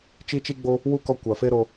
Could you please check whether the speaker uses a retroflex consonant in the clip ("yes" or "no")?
no